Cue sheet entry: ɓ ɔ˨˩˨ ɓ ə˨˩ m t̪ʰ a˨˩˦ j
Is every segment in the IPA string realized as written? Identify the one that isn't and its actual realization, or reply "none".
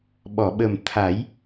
none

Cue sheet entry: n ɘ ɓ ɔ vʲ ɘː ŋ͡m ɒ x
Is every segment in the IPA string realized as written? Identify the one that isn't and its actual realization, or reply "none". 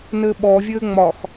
none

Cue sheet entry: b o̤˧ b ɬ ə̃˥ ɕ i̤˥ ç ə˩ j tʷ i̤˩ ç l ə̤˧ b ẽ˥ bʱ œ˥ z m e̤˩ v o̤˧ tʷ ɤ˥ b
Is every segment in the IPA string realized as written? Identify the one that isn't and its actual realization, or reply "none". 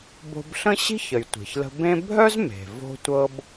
none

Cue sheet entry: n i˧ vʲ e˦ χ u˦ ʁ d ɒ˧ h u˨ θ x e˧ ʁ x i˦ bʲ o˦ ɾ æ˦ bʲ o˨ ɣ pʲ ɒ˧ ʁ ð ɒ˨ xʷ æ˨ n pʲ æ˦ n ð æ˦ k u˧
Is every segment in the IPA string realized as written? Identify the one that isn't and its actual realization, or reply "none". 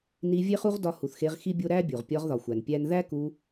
ɣ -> ʁ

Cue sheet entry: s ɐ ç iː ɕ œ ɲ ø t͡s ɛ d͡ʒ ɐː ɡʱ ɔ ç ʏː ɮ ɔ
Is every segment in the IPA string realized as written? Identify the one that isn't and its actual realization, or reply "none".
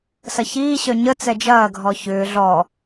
ø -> ə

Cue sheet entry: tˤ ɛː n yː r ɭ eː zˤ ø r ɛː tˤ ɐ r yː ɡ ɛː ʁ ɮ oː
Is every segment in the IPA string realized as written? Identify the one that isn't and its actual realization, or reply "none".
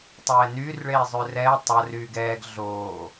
ʁ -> ɡ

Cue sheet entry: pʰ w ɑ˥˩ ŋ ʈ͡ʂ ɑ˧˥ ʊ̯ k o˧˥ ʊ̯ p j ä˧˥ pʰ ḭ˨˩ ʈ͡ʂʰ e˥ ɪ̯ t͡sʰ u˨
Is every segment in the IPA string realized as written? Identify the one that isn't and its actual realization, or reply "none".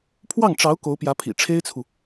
none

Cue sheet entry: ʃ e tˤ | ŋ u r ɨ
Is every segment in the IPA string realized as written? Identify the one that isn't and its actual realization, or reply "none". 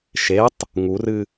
none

